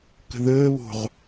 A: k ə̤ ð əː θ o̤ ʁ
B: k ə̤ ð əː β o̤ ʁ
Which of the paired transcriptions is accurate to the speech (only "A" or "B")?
B